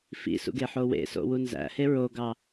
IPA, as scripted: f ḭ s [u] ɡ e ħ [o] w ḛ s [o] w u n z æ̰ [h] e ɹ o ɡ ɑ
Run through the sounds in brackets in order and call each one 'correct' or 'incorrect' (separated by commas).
incorrect, correct, incorrect, correct